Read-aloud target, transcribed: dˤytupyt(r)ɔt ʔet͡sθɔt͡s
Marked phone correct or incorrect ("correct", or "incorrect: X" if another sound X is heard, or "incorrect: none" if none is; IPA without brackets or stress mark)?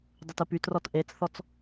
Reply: correct